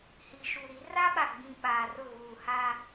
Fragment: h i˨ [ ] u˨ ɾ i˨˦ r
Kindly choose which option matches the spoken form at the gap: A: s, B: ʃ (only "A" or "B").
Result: B